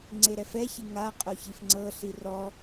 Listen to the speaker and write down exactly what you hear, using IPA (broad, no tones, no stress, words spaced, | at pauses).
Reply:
ŋ͡ǀeɾɛfɛçi ŋa qʼoçifŋ͡ǀɤɬi rɔ